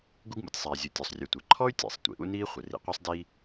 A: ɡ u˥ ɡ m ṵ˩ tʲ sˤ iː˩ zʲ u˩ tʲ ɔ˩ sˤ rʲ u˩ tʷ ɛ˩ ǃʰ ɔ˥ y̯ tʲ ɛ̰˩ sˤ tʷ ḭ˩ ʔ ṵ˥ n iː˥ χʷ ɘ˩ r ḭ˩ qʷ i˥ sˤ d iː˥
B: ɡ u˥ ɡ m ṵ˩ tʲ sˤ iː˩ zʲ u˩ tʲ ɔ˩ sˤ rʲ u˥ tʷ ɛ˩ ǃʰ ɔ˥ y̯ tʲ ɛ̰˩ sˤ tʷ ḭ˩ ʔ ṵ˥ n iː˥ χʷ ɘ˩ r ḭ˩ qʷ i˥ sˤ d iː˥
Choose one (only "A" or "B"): A